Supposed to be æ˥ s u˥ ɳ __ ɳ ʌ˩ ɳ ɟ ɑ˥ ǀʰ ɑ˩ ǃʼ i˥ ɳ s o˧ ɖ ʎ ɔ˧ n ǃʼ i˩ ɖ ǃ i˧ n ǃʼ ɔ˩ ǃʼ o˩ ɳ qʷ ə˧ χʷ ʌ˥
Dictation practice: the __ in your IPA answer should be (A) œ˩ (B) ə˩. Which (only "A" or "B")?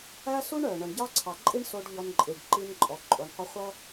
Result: A